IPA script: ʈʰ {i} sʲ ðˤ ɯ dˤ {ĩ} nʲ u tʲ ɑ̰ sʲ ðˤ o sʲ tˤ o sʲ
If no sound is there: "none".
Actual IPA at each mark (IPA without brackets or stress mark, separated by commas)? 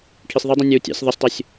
i, ĩ